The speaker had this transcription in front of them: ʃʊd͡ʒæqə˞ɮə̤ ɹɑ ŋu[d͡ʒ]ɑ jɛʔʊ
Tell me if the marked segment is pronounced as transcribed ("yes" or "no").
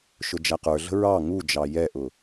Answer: yes